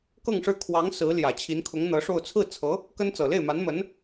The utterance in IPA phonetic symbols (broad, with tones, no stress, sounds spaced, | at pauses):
k ɤ˥˧ ŋ ʂ ɻ̩˥˩ kʰ w ɑ˧˥ ŋ s ɹ̩˧˥ l j ä˨˩ t͡ɕʰ i˧˥ n kʰ ʊ˧˥ ŋ n̪ ɤ˧˥ ʂ o˥˧ ʊ̯ t͡sʰ ɹ̩˥˩ t͡sʰ ɤ˧˥ | k ə˥ n t͡s ɤ˨˩ l e˥˩ ɪ̯ m a˧˥ n m ə˧˥ n